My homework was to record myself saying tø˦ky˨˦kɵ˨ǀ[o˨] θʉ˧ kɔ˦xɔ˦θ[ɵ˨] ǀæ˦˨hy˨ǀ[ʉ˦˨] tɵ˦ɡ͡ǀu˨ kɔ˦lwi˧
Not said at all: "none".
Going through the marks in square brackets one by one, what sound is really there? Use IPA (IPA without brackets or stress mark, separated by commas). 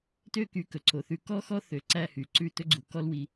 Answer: o˨, ø˨, ʉ˦˨